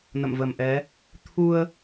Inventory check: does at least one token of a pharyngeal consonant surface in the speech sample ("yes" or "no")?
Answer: no